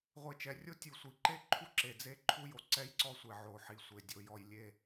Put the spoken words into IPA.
ʁʷe˨t͡ʃɛ˨rʲo˦ tʲu˨sʷi˨ǃe˦ ǃʰu˦ǁe˨d͡ze˦ ǃʰu˦jo˨ ǀɛ˦jǀɔ˦sʷe˨ ʕo˨ħi˨sʷe˨ dʲo˨jɔ˨j lʲe˦˨

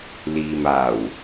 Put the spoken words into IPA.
liː˨maː˨˩w

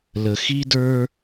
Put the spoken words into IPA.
lə˨ xi˦ də˞˦

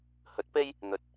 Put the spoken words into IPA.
hɵ˨˥t̚pe˥j | n̪ɵ˨t̚

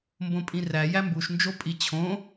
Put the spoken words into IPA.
mbõpʼĩræ jæmbuʃnd͡ʒo pʼit͡ɕʰõ

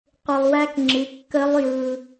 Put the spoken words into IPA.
qʷɯ˧lˠwæ˦˥kŋ͡ǁɨ˨˥ kːə˦˥lˠjɯ˧

